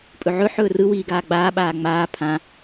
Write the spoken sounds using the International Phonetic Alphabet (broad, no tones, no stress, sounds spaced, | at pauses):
pʼ ɵ ʕ ɵ ħ ɵː r ɯ w iː ɡ aː ɡ͡b aː ɓ aː ŋ͡m aː pʰ ã